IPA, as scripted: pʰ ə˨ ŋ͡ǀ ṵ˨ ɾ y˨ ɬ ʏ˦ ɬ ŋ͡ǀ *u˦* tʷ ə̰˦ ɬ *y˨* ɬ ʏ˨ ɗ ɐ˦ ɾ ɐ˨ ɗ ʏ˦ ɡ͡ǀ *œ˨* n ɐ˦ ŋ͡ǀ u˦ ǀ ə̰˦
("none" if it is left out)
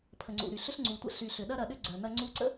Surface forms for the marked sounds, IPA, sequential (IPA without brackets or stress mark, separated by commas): u˨, y˨, œ˨